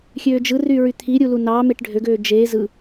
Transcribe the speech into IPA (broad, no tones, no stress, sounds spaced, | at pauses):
xʲ øː d͡ʒ ɯ r y ɹ y t̪ʰ i ɾʲ u l u n ɑ m e ʈ ɖʱ ø ɡ øː d͡ʒ eː z ɯ